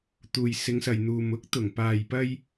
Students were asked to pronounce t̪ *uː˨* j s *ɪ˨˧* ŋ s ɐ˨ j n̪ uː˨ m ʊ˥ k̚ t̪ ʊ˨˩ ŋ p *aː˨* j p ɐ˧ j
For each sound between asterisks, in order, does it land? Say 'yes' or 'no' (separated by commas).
yes, yes, yes